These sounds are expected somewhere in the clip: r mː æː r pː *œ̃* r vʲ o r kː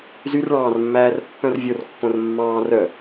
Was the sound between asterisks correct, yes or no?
yes